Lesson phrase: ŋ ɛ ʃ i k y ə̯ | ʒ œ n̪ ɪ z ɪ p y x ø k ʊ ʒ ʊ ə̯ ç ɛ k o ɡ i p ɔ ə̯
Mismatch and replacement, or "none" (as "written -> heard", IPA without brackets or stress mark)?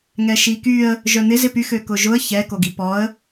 none